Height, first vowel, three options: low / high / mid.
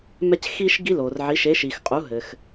mid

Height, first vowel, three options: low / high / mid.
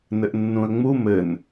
mid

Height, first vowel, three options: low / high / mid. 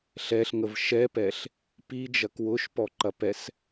mid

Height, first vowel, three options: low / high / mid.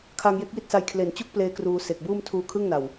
low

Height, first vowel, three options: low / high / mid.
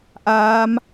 low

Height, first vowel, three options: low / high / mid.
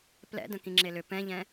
mid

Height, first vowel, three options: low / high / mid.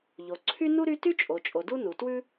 mid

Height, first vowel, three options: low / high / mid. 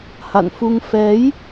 low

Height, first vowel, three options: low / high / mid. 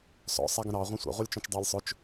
mid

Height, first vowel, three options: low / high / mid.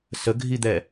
mid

